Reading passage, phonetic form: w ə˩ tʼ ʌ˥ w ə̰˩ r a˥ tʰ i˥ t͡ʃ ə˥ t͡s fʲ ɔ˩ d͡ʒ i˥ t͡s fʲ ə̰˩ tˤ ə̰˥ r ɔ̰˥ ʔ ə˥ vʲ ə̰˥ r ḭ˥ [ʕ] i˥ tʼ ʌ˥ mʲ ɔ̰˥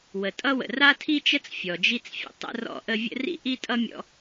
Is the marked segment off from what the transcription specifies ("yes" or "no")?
yes